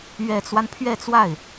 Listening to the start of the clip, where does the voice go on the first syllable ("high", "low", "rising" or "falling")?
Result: low